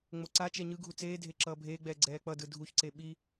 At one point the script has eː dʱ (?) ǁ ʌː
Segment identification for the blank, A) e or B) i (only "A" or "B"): A